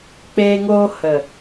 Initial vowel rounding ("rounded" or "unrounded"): unrounded